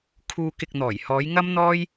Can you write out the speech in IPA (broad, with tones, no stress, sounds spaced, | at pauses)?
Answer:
kʰ uː˧ k ɪ˨ k̚ n̪ ɔː˨˩ j h ɔː˨˧ j ŋ ɐ˥ m n̪ ɔː˥ j